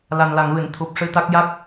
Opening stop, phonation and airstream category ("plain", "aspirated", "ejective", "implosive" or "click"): aspirated